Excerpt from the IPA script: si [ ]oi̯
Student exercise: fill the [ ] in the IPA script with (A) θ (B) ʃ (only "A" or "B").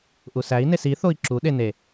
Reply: A